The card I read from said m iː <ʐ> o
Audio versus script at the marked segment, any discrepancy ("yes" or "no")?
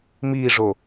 no